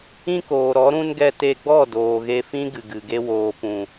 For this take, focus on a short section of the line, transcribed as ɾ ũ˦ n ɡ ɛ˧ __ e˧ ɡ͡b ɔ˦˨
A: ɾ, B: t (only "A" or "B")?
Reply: B